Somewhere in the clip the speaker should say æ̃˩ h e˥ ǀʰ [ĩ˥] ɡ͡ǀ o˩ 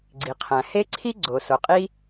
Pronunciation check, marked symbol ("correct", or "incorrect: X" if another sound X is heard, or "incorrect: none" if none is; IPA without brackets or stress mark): incorrect: i˥